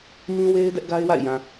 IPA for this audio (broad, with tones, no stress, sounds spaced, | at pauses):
m ĩ˦ w e˦ ɪ̯ d ɛ˦ ʔ ɡ a˦ ɪ̯ w a̰˦˨ ɪ̯ j ã˨